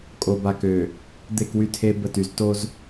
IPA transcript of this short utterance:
kʼ o˨ b a˨ k ø˨ | d̪ e˦˨ k w y˦ tʰ e˦ b ə˦˨ t y˨ z t o˦ z

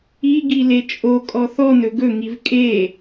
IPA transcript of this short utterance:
i ɡ i l e t͡ʃʼ o kʼ ɔ θ ɔ n ɵ ɡ ɵ ŋ i v kʼ e

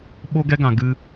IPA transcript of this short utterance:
ɓ o˧ ɡ ɛ˧ ɡ ã˨ ɡ ɨ˧

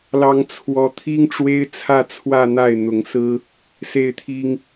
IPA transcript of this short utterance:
l ɑ˥ ŋ t͡sʰ w ɔ˥ t̪ʰ i˥ ŋ ʈ͡ʂ w e˥ ɪ̯ t͡sʰ ä˥˧ t͡sʰ w ä˥˧ n̪ a˥˩ ɪ̯ n̪ ʊ˧˥ ŋ s ɹ̩˥ | s e˥˩ ɪ̯ t̪ʰ i˥ ŋ

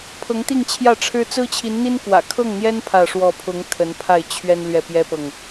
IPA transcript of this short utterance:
pʰ ɤ˧˥ ŋ t̪ i˥˧ ŋ t͡ɕʰ j ä˥˩ ʈ͡ʂʰ ɻ̩˥ t͡s ɹ̩˥ t͡ɕʰ i˧˥ n n̪ i˥ n k w ä̰˨˩ kʰ ɤ˥˩ ŋ n̪ j ɛ˥ n pʰ ä˥˧ ʂ w ɔ˥˩ pʰ ʊ˧˥ ŋ t̪ʰ ə˧˥ n pʰ a˥˩ ɪ̯ t͡ɕʰ ɥ ɛ˥ n l ɥ ɛ˥˩ p j ɛ˥ p ɤ˨ ŋ

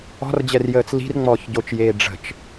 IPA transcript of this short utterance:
ɔ̤ r d͡ʑ ɛ r j əː t͡s l i̤ r ŋ͡m ɔː ç ɟ o t͡ʃ j eː ɖ͡ʐ ə̤ t͡ʃ

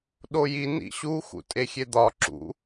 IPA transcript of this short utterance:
ɗ o j i n ḭ ɕ u x ṵ tʼ e xʲ e d̪ ɒ ǁ ṵ

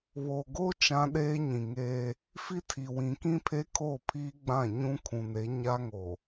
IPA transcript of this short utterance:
β o˨ ɡ o˦ t͡ʃ ã˦ ɗ eː˦ ɲ ĩ˨ ŋ eː˦ | f i˦ tʰ i˨ w ĩ˨ k ĩ˦ pʰ e˦ kʰ oː˦˨ pʰ iː˦ ɡ͡b ã˦˨ ɲ ũ˦ kʰ ũ˨ n e˨˦ ɲ a˦ ŋ o˨

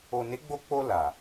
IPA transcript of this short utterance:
o˨ n e˨˦ ɡ͡b o˧ k͡p o˧ l a˨

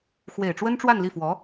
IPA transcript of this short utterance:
x w e˨˩ ɪ̯ ʈ͡ʂ w ə˥ n ʈ͡ʂ w a˥˧ n l i˥˩ f w ɔ˧˥

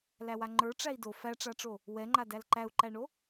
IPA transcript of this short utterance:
l æ w a ŋ͡ǃ ə˞ ʈ͡ʂ æ i̯ d o f æ ʈ͡ʂ a ʈ͡ʂ o | w ɛ ŋ͡ǃ a d æ l ǃ æ u̯ ǃ æ ɳ o

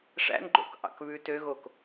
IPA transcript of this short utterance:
ʂ æ̰ n ɡ͡ǃ o̰ k ʔ ɑ̰ k β ʉ t ø ɣ o k

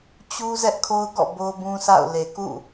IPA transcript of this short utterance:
t͡ɕ u˦ z ɛ˦ ʔ kʰ o˦ ʊ̯ ɡ ɔ̰˦˨ b o˦ b ũ˦ s a̰˦˨ ʊ̯ l e˨ k ṵ˦˨

